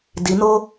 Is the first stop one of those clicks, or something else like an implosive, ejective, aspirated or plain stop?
plain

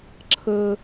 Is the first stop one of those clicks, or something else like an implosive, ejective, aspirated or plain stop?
click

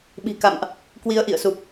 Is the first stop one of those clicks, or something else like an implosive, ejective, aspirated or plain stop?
implosive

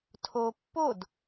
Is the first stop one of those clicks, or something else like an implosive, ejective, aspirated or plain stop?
aspirated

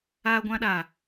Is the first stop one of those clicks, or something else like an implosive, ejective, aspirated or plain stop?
plain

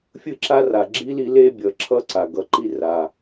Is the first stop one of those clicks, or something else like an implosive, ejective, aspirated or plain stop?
click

